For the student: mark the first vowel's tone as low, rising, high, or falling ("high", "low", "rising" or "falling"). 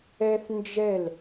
high